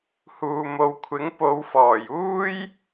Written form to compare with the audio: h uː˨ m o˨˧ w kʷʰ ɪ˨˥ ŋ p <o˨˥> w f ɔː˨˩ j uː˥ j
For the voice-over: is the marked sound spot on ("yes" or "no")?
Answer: no